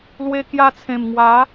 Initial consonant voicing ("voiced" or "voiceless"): voiced